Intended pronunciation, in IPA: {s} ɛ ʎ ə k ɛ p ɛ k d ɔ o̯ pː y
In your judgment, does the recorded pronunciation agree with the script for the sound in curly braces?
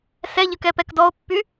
yes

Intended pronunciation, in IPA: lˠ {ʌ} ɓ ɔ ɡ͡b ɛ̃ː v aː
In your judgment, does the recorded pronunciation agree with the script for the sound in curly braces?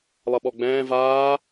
yes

